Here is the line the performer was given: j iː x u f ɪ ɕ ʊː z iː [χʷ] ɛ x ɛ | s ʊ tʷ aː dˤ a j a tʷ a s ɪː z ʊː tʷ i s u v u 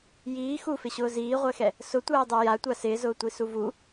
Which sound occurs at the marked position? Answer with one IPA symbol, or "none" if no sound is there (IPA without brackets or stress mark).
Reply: ʁʷ